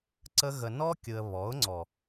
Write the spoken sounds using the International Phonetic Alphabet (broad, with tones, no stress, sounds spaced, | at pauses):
ǀ ə˦ ɣ ə˧ n ɔ˦ kʲ ɯ˧ ə̯ β ɔ˨˦ ʊ̯ ŋ͡ǀ ɔ˨